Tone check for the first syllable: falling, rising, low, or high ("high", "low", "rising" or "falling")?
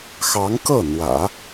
rising